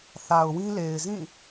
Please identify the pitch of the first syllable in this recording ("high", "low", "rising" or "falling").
low